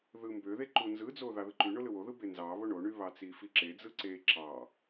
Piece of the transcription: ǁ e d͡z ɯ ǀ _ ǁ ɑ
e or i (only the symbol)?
e